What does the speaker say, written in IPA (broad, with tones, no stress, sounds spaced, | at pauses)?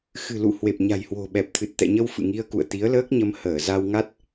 x ɨ̤˨˩ l ṵ˧˨ h w e˨˩ p̚ ɲ a̤˨˩ j h w o̤˨˩ ɓ ɛ˨˩ p̚ t̪ʰ ɨ˨˩ t̚ t̪ ɛ̰˧˨ ɲ ə˧ w f ɨ̰˧˨ ŋ i˧ ə̯ k ṵ˧˨ ə̯ t̪ i˨˦ ə̯ l əː˦˥ k̚ ɲ ə˧ m h əː˧˩ z a˧ w ŋ a˦˥ t̚